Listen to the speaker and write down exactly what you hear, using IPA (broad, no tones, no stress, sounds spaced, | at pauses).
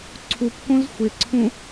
ǀʰ u p k õ z xʷ ɪ ǀʰ ũ